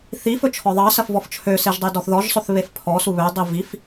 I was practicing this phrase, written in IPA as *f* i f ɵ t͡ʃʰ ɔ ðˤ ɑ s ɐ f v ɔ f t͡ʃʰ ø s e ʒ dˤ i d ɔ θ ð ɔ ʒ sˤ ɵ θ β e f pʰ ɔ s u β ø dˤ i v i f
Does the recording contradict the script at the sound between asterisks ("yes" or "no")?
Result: yes